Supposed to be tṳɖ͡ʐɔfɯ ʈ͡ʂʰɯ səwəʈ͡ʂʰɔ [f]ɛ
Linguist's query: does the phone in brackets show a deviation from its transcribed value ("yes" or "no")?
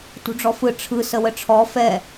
no